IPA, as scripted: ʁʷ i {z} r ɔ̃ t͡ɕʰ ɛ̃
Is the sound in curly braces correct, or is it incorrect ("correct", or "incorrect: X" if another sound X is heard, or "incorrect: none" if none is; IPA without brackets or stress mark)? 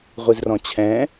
correct